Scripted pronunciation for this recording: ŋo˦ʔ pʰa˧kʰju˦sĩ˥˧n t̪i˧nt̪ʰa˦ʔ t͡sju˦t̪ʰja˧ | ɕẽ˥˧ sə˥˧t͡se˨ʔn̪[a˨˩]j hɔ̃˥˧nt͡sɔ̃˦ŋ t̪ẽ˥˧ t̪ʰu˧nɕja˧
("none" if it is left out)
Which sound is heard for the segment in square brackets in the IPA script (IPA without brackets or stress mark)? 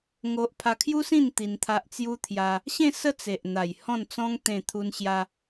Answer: a˨˩